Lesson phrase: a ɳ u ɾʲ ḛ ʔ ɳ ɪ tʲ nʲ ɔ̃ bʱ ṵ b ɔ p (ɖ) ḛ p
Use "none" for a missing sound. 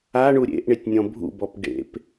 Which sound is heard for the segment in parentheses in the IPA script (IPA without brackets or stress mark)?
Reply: ɖ